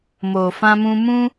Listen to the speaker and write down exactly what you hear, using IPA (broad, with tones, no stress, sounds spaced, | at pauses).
m o˨ f ã˧ m ũ˧ m ũ˦